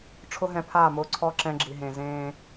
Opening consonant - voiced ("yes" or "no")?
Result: no